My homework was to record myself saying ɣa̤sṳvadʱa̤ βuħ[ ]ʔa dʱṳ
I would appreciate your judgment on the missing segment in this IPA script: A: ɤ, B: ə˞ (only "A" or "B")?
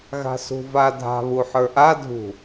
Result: B